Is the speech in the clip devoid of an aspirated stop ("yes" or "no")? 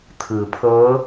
no